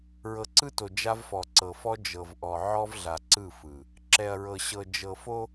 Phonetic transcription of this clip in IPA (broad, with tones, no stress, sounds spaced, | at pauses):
ɹ ɤ˨ ǀ ɯ˦ t o˨ d͡ʒ a˦ v f ɔ˨ ǀ ɤ˨ f ɔ˦ d͡ʒ ɤ˨ v ʔ ɔ˨ ʕ ɔ˦ v ɮ a˨ ǀ ɯ˦˨ f ɯ˨ | ǁ ɛ˨ ɐ̯ ɹ ɤ˨ ɕ ɤ˨ d͡ʒ ɤ˨ f o˦